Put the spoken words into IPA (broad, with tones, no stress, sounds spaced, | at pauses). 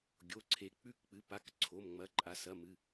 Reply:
ɡʲ o˩˧˩ ǀʰ e˩˧˩ k͡p ʉ˥˨ k k͡p ɨ˩˥ p a˩˧˩ k ǀʰ o˩˧˩ m ŋ͡m ɐ˩˧˩ ǃʼ a˩˥ s ɐ˩˧˩ m ɨ˩˧˩